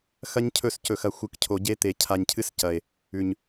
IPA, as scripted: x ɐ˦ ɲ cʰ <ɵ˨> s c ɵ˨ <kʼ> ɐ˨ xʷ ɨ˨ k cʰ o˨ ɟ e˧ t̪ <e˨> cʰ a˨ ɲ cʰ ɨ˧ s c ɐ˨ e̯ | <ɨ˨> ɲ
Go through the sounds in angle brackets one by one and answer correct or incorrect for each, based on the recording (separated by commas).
incorrect, incorrect, correct, incorrect